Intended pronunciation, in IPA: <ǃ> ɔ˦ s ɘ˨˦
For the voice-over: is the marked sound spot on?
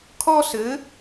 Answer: no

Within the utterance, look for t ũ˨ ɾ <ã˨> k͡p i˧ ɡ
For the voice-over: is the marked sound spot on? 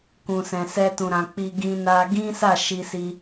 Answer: yes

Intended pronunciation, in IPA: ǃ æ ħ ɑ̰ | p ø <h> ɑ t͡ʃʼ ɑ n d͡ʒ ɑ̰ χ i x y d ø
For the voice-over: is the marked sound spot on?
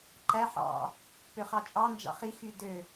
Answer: no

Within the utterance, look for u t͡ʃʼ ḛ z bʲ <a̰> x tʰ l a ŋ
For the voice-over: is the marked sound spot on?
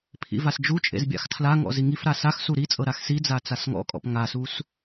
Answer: yes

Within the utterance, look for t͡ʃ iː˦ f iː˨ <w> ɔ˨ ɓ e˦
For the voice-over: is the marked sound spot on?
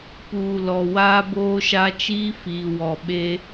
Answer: yes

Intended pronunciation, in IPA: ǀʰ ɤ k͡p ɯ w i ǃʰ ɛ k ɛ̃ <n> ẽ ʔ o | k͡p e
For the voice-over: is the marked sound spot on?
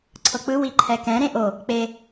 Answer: no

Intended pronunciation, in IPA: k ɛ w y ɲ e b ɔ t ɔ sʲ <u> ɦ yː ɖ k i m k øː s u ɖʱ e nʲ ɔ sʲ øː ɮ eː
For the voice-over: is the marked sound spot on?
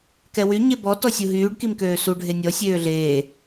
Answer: yes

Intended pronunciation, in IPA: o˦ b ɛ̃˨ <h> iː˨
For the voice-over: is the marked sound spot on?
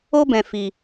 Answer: no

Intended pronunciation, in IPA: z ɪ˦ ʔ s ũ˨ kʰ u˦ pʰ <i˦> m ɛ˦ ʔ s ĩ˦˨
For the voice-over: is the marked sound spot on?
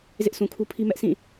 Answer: yes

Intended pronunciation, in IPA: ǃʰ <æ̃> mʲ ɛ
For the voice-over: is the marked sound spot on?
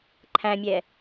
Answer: yes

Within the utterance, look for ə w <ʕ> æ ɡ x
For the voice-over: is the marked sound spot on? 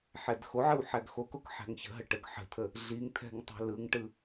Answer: no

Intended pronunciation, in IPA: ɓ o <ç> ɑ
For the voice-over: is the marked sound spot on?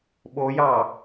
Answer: no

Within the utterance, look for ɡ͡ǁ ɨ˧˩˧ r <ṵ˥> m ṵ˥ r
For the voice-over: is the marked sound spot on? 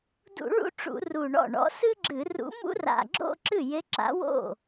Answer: no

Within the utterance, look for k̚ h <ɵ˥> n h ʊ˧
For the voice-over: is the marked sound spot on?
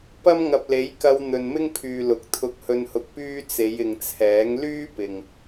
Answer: no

